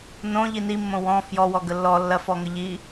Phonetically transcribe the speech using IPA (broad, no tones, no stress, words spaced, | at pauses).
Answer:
nõ ʎinimːõ wɔ̃ fjɔwɔ ɡəlːɔ lːɐfɔŋə ʎi